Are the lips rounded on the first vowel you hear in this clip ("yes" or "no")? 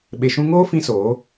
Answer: no